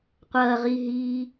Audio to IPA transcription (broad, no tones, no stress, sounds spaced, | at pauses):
qʷ ɐː ʁ iː ɦ iː